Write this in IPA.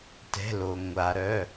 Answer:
tɛ̤˩˧˩lo˩ ŋʷa˩ ɾœ˩˧˩

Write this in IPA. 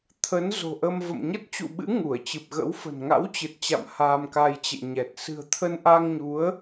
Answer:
t̪ʰə˨˦n zo̤˨˩ʔə˧m və̰˧˨mɲə˦˥t̚t͡ɕṵ˧˨ ɓɨ̰˧˥ ŋu˧˩ə̯t͡ɕɨ˨˩p̚ɣə̰˧˥wfə̤˨˩n ŋa̰˧˥wt͡ɕɨ˨˩t̚t͡ɕa̰˧˨m haː˧mka˧jt͡ɕḛ˧˨ɲɛ˨˩t̚ sɨ̤˨˩ə̯t̪ʰə˧nʔa˧ŋɲu˨˦ə̯

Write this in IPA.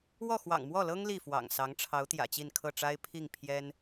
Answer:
wɔ˥˩xwɑ̰˨˩ŋmwɔ˥˩lɤ˥ŋ li˥˩fwɑ̰˨˩ŋsɑ˧˥ŋ ʈ͡ʂʰɑ˧˥ʊ̯ t̪jä̰˨˩t͡ɕi˥˧nkʰɤ˥˩ʈ͡ʂa˥ɪ̯ pʰi˥˩ŋ pʰjɛ˥n

